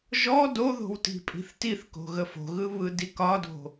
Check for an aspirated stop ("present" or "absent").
absent